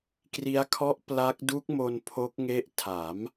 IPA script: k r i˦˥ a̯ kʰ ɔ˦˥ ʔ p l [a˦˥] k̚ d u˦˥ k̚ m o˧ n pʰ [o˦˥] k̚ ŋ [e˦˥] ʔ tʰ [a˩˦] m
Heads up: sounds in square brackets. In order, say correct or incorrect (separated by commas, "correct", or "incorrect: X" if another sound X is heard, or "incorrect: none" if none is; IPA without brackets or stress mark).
correct, correct, correct, incorrect: aː˩˦